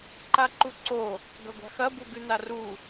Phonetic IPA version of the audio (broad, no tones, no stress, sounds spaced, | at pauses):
ǃ a ǃ u ǀ o | ɡ ɐ ɡʷ a̤ x ɐ b u ɡ ʉ n a r u